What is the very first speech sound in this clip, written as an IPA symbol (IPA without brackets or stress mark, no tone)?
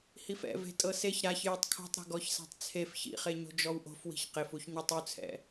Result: h